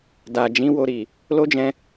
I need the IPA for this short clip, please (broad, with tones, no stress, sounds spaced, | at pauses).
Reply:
d a˨ d͡ʒ ĩ˨˦ w o˧ ɾ i˨ | l o˦ d͡ʒ ɛ̃˧